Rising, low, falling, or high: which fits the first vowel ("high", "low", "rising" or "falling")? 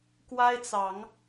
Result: high